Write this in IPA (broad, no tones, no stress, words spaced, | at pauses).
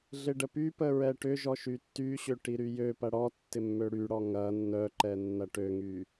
ɮɪɖəpypə ɹɛʈʏʒɔ ʃytːyɕø ʈiɾyjøpɐ ɽɔ tːɪmːøɽyɽɔ ŋɐ nːœǃɛ nːɐʈøŋy